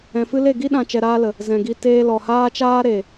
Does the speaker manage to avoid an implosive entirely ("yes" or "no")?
no